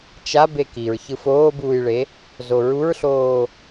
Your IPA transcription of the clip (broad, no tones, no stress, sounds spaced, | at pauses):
t͡ʃ a b e k i ɹ ç ɯ f oː b uː j ɭ e | z o ɹ u ɹ ɬ oː